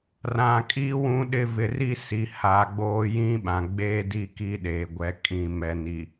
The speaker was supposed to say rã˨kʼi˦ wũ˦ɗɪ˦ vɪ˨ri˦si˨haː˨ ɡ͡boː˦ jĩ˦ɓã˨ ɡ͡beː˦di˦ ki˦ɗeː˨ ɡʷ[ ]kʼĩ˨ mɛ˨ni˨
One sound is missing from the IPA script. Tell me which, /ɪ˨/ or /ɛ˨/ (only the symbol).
ɛ˨